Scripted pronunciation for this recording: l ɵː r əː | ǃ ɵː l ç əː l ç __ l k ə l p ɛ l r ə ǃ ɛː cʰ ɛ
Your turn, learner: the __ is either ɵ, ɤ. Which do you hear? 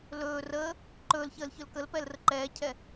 ɵ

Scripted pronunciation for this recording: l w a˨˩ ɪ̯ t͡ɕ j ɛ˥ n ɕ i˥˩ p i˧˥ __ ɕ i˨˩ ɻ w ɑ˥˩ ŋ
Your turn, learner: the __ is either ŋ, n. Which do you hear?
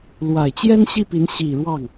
n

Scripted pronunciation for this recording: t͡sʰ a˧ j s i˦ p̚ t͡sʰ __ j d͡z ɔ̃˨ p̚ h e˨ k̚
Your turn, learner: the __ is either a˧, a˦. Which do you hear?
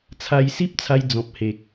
a˧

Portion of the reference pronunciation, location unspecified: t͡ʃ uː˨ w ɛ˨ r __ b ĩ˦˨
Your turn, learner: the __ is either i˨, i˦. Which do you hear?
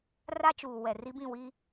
i˦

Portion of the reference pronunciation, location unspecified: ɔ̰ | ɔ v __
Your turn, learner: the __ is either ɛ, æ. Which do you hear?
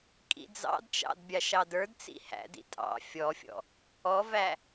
æ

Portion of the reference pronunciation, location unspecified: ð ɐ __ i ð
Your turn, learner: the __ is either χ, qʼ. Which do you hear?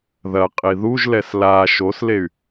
qʼ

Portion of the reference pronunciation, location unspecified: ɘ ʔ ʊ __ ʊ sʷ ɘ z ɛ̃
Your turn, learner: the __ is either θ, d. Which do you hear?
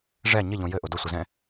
d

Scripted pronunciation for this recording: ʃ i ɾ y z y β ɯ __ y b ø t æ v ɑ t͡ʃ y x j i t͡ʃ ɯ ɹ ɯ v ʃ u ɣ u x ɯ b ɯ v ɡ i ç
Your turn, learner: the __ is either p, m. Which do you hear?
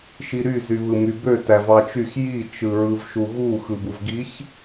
m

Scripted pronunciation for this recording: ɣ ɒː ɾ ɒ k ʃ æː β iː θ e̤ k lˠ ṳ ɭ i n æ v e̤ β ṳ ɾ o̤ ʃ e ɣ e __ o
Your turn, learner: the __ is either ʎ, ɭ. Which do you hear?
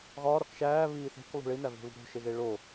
ɭ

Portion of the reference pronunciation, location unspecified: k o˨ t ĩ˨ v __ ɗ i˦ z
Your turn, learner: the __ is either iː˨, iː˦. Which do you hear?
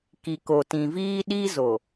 iː˦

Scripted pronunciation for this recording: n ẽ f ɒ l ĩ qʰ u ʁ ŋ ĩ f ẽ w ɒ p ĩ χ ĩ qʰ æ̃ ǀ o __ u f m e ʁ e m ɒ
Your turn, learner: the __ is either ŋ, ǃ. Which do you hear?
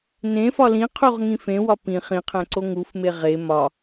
ŋ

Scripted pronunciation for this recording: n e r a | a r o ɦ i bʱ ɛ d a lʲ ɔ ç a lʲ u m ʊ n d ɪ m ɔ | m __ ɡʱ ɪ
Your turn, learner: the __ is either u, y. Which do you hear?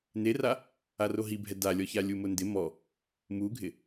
u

